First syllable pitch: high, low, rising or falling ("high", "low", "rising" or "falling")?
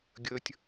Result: high